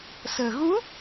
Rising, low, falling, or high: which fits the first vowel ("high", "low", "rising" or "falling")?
low